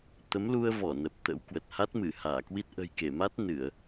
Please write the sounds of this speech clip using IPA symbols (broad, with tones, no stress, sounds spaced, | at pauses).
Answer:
t̪ ə˨˦ m l u˧ ə̯ v ɔ˧˩ n ə˨˩ p̚ t̪ ə̰˧˥ w k w ə˨˩ t̚ h a˦˥ t̚ m ɨ˧˩ h aː˧˩ k w i˦˥ t̚ ʔ ə̤˨˩ j k e˧˩ m a˦˥ t̚ n ɨ˧˩˨ ə̯